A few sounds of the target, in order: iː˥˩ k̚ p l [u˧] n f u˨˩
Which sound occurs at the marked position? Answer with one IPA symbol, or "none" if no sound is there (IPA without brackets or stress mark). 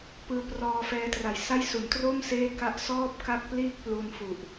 u˧